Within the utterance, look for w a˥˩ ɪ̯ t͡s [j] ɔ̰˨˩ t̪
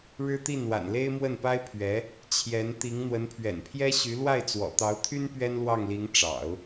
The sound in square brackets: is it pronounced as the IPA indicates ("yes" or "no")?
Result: no